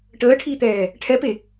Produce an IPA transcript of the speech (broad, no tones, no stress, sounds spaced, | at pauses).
ʈ əː ʈʰ iː t̪ ɛː | ʈʰ ɛ p e